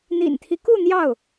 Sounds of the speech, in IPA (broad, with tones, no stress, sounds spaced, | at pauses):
n̪ ḭ˨˩ n t̪ʰ i˦ k u˥˧ n̪ j ɑ˥˩ ʊ̯